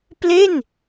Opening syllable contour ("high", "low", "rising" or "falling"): falling